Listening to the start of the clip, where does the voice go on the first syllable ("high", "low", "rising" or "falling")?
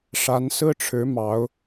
rising